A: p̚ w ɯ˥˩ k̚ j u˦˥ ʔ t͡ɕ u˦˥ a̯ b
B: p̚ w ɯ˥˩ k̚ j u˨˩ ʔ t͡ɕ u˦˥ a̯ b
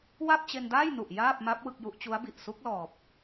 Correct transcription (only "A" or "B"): A